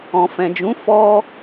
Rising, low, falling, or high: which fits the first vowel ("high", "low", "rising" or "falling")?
low